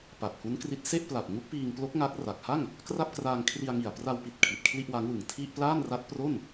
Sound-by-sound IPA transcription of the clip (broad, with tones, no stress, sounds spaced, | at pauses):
p a˨˩ p̚ h u˦˥ n k r i˦˥ t̚ s e˥˩ ʔ p l a˨˩ p̚ ŋ u˦˥ k̚ p iː˧ ŋ p l o˦˥ k̚ ŋ a˦˥ k̚ r a˨˩ k̚ h a˥˩ ŋ | k r a˥˩ p̚ k r aː˧ ŋ kʰ r i˧ a̯ ŋ i˨˩ a̯ p r a˧ w p i˨˩ t̚ kʰ i˨˩ t̚ kʰ l i˥˩ ʔ w a˦˥ ŋ w ɯ˨˩ ŋ tʰ i˥˩ ʔ p l aː˥˩ n r a˦˥ t̚ p r o˥˩ n